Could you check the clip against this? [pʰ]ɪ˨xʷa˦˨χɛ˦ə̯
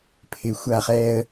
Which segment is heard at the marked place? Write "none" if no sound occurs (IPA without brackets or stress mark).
pʰ